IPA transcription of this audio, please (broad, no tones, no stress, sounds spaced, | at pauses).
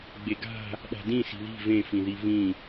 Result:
ɡ͡b e ɡ a̤ | ɗ a̤ d ĩ s i̤ ð i̤ v ẽ f ĩ ð i v ĩ